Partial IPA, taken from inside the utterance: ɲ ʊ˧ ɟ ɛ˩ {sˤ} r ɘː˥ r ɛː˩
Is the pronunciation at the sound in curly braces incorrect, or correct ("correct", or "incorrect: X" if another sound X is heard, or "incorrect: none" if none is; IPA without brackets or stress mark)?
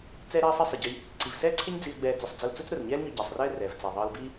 correct